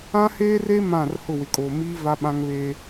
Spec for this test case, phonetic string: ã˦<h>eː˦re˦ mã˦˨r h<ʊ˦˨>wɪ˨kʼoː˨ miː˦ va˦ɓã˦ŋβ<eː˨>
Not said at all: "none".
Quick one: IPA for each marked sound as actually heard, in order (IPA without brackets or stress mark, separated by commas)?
h, ʊ˦˨, eː˦